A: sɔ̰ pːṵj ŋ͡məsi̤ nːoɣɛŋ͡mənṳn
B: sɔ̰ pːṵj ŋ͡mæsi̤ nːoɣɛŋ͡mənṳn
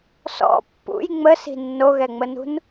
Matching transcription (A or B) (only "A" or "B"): A